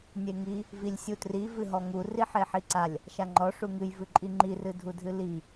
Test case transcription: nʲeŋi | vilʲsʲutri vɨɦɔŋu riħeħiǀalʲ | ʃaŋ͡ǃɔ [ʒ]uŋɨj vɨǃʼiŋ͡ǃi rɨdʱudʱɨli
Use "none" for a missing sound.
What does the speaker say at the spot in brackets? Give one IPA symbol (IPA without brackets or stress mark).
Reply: ʂ